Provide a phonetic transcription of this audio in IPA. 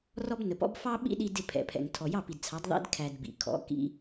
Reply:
r ɔ˦ b n ə˨ p ɔ̰˦ b f ɑ˦ ɓ ḭ˦ ɗ i˧ d ɪ˦˨ pʰ ɛ̰˨ pʰ ɛ̰˨ ŋ tʰ ɔ˨ j ɑ˦˨ p i˨ d t͡sʰ ɑ˨˦ d ðˤ ḭ˦ d kʰ æ˧ d b ḭ˨ kʰ ɔ̰˨˦ k ḭ˧

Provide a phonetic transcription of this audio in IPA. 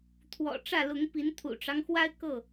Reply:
t̪ʰ w ɔ̰˨˩ ʈ͡ʂ ä˥˨ l ʊ˨˦ ŋ p i˨˦ n t̪ʰ ṵ˨˩ ʈ͡ʂ ɑ˦ ŋ x w a˦ ɪ̯ k ɤ˥˨

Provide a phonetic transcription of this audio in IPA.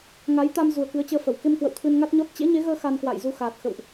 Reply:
ŋ a˨˦ j t̪ a˧ m z u˨˩ ə̯ k ɨ˨˦ ə̯ t͡ɕ əː˧ f ə˧˩ w k e˧ m k w ə̰˧˨ w t̪ʰ ɨ˧ n ŋ a˦˥ t̚ ɲ ɔ˦˥ t̚ t͡ɕ ḛ˧˥ ɲ e˨˦ ɣ əː˧ x a˧ n k w a̰˧˨ j z u˧ x aː˨˩ t̚ x ə̰˧˨ w ʔ

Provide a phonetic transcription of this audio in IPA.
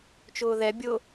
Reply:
t͡ʃ ʊː ð ɛ bʲ ʊ

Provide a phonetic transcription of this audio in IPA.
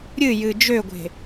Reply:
ɾʲ ɨ j ɨ d͡ʒ ø ɡʷ e̤

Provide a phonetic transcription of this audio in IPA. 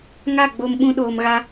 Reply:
ŋ a˦˨ ɡ͡b o˧ m ɓ ũ˧ ɗ oː˨ m ɣ a˧

